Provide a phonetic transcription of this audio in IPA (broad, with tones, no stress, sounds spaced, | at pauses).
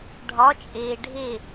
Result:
ɖʱ ɒ˧˥ t͡ʃʼ eː˧ ɖʱ e˥˧